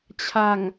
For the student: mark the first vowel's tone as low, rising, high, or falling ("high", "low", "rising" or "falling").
low